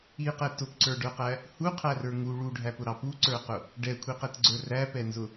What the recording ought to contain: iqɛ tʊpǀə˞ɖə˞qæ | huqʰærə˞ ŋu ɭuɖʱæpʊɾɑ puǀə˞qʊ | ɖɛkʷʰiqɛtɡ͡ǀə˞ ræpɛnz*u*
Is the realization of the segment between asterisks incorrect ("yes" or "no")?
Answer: yes